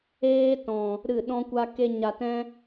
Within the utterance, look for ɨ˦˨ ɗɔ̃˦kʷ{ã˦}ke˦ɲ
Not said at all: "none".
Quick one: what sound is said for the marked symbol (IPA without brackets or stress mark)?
a˦